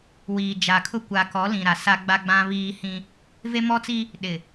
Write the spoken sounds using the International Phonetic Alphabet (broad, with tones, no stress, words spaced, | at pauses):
wiː˨d͡ʒa˨kʰʊ˦ kʷa˨kɔ˨˦lĩ˨ ɾa˨sa˦ ɡ͡ba˦ɡ͡bã˦βiː˦hĩ˦ | ve˦mɔ˦t͡si˦ | ɗɪ˨